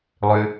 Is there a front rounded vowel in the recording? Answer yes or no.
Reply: yes